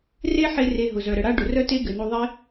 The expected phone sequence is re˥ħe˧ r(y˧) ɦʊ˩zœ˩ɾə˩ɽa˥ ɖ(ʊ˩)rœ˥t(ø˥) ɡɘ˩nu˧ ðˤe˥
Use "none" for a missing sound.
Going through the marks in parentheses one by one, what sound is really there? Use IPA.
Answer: e˧, ʊ˩, e˥

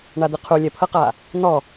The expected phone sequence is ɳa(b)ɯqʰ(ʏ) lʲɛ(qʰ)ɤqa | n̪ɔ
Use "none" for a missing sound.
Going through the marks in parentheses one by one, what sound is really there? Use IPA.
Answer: d̪, u, pʰ

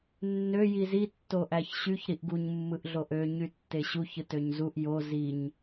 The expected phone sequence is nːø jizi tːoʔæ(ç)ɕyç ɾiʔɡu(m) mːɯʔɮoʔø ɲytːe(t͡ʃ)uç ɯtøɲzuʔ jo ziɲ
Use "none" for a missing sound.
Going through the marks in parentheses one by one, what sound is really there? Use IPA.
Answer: ç, ɲ, ɕ

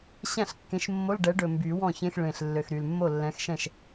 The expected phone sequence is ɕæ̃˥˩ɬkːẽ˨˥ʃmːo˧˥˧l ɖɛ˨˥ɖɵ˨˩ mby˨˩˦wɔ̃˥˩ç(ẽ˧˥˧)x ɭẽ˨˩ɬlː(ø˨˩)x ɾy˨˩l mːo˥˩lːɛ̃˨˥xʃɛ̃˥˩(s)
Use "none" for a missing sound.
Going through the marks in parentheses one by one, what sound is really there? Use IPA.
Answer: ẽ˧˥˧, ø˨˩, ʃ

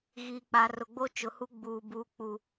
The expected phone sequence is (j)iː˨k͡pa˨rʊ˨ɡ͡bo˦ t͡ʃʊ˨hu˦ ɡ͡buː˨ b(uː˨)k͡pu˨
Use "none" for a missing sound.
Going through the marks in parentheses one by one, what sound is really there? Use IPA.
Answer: ɣ, uː˨

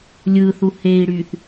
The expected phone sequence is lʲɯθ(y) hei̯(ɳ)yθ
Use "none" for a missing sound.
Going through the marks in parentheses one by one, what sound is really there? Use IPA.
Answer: u, ɽ

